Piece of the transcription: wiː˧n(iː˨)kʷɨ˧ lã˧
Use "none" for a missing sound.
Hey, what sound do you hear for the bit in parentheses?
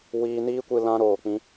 iː˦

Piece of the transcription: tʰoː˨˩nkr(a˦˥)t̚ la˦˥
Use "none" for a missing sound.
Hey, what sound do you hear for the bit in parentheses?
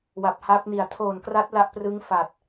a˦˥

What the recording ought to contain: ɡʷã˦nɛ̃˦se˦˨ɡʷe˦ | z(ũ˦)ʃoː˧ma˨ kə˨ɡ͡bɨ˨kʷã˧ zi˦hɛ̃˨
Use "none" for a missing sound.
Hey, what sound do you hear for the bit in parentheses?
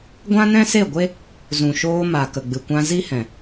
ũ˨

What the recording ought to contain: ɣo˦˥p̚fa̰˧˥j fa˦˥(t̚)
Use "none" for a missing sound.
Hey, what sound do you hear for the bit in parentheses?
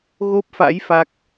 k̚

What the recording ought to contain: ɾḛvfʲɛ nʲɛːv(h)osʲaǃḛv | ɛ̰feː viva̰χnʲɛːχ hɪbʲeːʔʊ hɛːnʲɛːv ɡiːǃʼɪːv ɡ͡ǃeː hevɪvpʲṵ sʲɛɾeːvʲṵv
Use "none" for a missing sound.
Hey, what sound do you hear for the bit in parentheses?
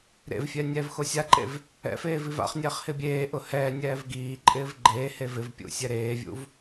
x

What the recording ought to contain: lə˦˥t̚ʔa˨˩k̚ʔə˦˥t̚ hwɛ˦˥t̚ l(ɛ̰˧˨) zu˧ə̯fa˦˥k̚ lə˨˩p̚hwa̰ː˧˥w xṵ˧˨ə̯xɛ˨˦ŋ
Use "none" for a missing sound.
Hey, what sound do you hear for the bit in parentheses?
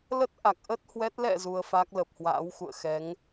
ɛ̰˧˨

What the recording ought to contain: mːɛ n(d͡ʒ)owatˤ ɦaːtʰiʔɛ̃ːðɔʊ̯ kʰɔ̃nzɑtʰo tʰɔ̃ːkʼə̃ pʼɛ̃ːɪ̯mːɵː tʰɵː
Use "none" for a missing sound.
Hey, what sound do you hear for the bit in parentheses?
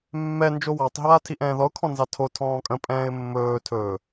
d͡ʒ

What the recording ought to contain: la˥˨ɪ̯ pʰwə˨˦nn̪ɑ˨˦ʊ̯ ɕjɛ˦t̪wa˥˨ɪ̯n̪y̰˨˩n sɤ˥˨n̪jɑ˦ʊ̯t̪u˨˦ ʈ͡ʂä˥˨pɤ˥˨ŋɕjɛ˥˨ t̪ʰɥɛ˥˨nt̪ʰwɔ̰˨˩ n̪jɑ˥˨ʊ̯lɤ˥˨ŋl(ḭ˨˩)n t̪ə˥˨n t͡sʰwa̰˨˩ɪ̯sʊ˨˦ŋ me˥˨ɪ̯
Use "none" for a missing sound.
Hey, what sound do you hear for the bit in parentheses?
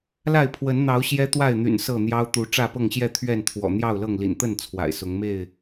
ḭ˨˩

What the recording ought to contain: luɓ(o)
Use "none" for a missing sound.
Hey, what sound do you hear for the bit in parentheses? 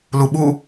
u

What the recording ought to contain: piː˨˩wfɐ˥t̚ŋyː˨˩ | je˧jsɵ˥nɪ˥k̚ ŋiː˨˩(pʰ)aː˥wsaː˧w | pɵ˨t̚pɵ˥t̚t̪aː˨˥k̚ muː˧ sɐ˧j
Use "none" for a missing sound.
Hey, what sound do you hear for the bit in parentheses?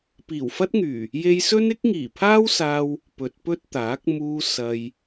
pʰ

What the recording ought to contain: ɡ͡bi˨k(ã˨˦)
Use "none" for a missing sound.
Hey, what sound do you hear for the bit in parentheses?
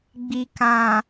ã˨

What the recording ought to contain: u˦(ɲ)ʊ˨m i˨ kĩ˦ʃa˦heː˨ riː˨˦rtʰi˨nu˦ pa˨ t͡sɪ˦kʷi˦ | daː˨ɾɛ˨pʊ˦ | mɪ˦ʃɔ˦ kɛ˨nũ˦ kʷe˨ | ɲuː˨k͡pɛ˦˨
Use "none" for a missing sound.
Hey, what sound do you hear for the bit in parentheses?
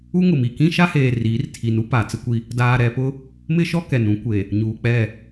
ŋ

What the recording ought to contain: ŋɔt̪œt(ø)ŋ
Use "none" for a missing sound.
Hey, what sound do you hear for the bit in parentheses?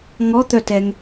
ɛ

